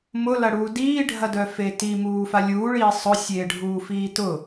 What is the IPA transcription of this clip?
m ʊ l ɐ ɽ uː d iː ɖʱ ɐ d œ f e t i m uː f a lʲ uː ɭ iː sˤ ʊ sʲ eː ɖʱ uː f iː t ʊ

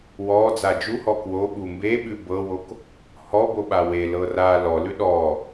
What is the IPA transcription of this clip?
w ɔ d͡z a d͡ʒ u h ɔ k w o ɓ u m b e ɓ ʉ b ɤ w o k | h ɔ b o ɓ a w e l ɤ r a l ɔ l ʉ ɗ ɔ

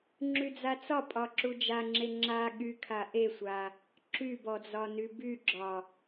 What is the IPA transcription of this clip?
ŋ͡ǁ y d͡z a t͡s ɒ pʼ ɒ ǁ u d͡ʒ a ŋ͡ǁ e ŋ͡ǁ a ɠ y kʰ a ʔ e sʷ a | ǁ y b ɔ d͡z ɒ n y b y ɡ͡ǁ ɒ

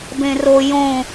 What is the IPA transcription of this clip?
b ẽ r o j õ

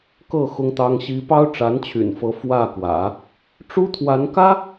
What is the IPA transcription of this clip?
k ɤ˥˩ x ʊ˥ ŋ t̪ ɑ˥ ŋ ɕ i˥ p ɑ˥ ʊ̯ ʈ͡ʂ a˧˥ n t͡ɕʰ y̰˨˩ n f ɤ˧˥ f w ä˥˩ k w ä̰˨˩˦ | ʈ͡ʂ u˥ t̪ʰ w a˧˥ n k ä˥

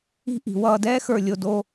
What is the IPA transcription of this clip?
i̤˥˧ ʔ i̤˩˧ w ʌː˧ d ɛː˥ x ə˞˧˩ lʲ o˧˩ d o˥˧

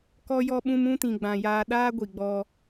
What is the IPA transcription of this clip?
k ɔ˦ j ɔ˦ ɓ ũ˦ m ũ˦ t ĩ˨ ɡ͡b ã˨ j aː˧ ɗ aː˦ ɡʷ i˨ ɡ͡b ɔ˧

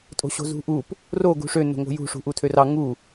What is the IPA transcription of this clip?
tʼ o̤ ɕ o̤ z ṳ ʔ u p | r o ɡ ṳ ʂ ø n o̤ ŋ o̤ j ṳ ʂ ṳ ʔ u tʰ ø r ɑ ŋ u

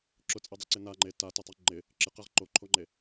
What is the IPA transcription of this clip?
ǁ ʊ t͡sʼ ɛ dˤ ɛ ǀ ɪ n a ŋ͡ǃ e t a t ɛ tˤ i ŋ͡ǃ ɪ | ǁ ɪ q ɛ ʁ ǃ o ǃʰ o ŋ͡ǃ e

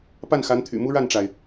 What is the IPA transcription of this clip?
p a˥˩ n x a˧˥ n t̪ʰ y̰˨˩ m u˥ ɻ a˥˩ n ʈ͡ʂ a˩ ɪ̯

